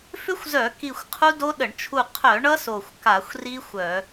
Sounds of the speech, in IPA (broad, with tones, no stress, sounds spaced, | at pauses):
f ʏ˦˥ xʷ z œ˧˩˧ k i˧˩ xʷ qʰ u˦˥ d o˦˥ ɗ ə˧˩˧ ɳ t͡ʃʰ u˧˩ qʰ œ˧˩˧ ɳ ʌ˦˥ s o˧˩ xʷ k a˧˩˧ xʷ r i˦˥ xʷ œ˧˩˧